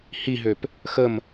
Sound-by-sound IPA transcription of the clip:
h i ɦ ø p | x ə m

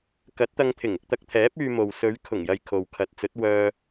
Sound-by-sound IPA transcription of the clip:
k ɐ˨˥ t̚ t̪ ɐ˧ ŋ t̪ʰ ɪ˨˩ ŋ ɪ˧ k̚ t̪ ɐ˧ k̚ t̪ʰ ɛː˨˥ p̚ yː˧ m o˨ w s ɵ˨˧ ɥ kʰ ʊ˨˩ ŋ j ɐ˨ j kʰ o˨ w kʰ ɐ˨˥ t̚ t͡s ɵ˨˥ t̚ w œː˧

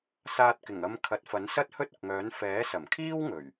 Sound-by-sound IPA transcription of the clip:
s aː˧ t̚ k ɪ˨˩ ŋ ɐ˧ m kʰ ɐ˨˥ t̚ f ɐ˨˥ n s ɐ˥ t̚ h ɵ˥ t̚ ʊ˨ k̚ ŋ œː˨˥ n f ɛː˨˥ s ɐ˨˩ m kʰ iː˥ w ŋ ɵ˨˩ ɥ

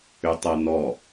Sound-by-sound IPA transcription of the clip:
ʏ tˤ ɤ n ɔ

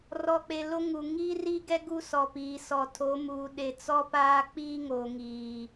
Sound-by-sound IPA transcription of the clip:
r ɔ˨ k͡p e˨ l o˦ ŋ u˨ ŋ iː˦ r iː˦ ɡ ɛ˦ ɡ u˦ s ɔ˨ p iː˨ s ɔ˨ tʰ o˨˦ m uː˨ ɗ e˨ t͡s ɔ˦ p aː˦ k͡p iː˦ ŋ oː˨ ŋ iː˨

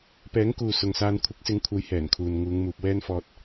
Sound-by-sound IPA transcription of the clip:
p ɛː˨˥ ŋ k uː˨ s ʊ˨ ŋ s aː˧ n kʷʰ ɪ˨˥ k̚ s ɪ˨˧ ŋ kʷʰ ɐ˨˥ j h ɛː˨˩ n kʰ uː˨ n ŋ uː˨˧ ŋ m uː˨ p̚ w ɛː˥ n f ɔː˧ t̚

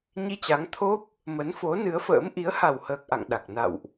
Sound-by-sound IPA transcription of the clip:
ɲ i˧ t͡ɕ a˨˦ ŋ t̪ʰ o˦˥ p̚ | m ə˨˦ n f o˨˦ n ɨ˨˦ ə̯ f ə̰ː˧˥ m ʔ i˨˦ ə̯ h a˨˩ w h əː˨˩ k̚ ʔ a̰˧˨ ŋ ɗ a˨˩ k̚ n a̰˧˨ w ʔ

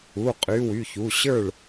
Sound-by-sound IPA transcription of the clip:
u˩˧˩ qʼ y˩˧˩ w y˩˧˩ ç u˩˧˩ ɕ ə˞˥˩ ɭ

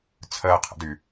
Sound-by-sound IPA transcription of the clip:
t͡sʰ əː qʰ ə̰ d y

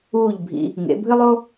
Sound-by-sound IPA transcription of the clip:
uː˥˩ ʎ bʱ ḭ˧ | ŋ ḛ˩˥ bʱ ɨ˥ lˠ o˥

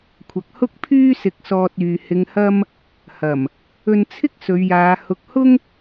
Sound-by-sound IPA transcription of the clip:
kʷʰ ɐ˨˥ k̚ h ʊ˥ k̚ pʰ yː˥ s ɪ˧ k̚ s ɔː˧ t̚ yː˨ h ɪ˨ ŋ h ɐ˧ m | h ɐ˨˩ m | ɵ˧ n t͡sʰ ɪ˥ k̚ s ɵ˨˧ ɥ j aː˨˧ h ʊ˨ k̚ h ʊ˥ ŋ

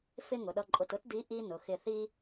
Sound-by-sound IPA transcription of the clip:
f ɪ˥ ŋ ʊ˩˧ ɗ ʌ˧ ǃʼ ʊ˧ t ʊ˥ t d i˧˥ ʔ i˥ n ʊ˩˧ x ɪ˧ θ i˥

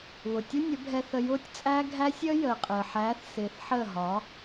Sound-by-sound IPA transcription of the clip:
β ʊ˨ tʲ ʊ˦ nʲ ə˨˦ bʱ ɛ˧ θ ə˧ j ʊː˦ tʲ t͡sʼ æː˦ ɡʱ æ˦ sʲ əː˦ j əː˨ qʼ əː˨ ħ æː˨˦ θ s ɪː˨ θ ħ əː˦˨ ɦ ɒː˨˦

